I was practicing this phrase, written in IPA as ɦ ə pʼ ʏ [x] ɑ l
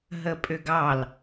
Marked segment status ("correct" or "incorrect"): incorrect